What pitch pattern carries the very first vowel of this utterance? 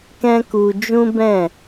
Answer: high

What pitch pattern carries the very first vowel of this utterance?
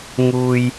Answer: low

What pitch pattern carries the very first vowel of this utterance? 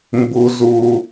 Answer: low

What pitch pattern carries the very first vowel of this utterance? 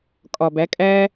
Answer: low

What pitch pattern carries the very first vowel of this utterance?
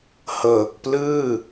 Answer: low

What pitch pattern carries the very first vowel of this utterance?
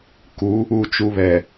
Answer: rising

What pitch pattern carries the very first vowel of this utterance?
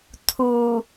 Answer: low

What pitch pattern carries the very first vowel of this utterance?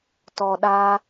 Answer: low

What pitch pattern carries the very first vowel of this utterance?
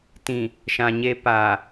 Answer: low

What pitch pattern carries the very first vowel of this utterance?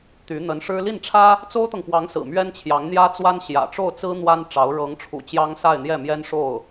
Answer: rising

